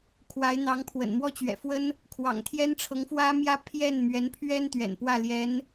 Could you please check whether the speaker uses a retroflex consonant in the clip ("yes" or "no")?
yes